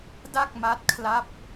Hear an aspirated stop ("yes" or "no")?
yes